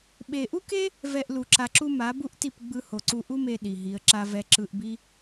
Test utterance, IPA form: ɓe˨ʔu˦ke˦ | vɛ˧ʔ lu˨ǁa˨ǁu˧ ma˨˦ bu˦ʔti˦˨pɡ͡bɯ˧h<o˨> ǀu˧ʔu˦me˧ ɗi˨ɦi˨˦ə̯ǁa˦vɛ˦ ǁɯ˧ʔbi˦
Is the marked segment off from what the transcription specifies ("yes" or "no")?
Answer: no